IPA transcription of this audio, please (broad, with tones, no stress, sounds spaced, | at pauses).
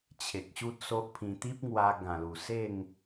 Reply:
t͡ɕʰ e˨ k̚ ɕ u˦ t̚ s o˦ ʔ pʰ ĩ˧ t̪ i˦ p̚ ŋ w a˧ ɡ ã˨˩ l u˨˩ s e˥˧ ŋ